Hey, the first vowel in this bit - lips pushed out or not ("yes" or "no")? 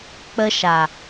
no